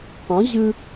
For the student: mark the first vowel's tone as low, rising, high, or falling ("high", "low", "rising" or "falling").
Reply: rising